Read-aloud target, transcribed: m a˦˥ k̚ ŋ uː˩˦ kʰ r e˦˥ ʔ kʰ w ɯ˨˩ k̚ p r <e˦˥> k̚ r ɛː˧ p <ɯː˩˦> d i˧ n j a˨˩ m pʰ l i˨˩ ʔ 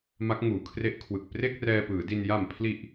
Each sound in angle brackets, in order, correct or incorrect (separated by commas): incorrect, correct